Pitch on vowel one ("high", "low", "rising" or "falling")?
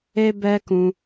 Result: high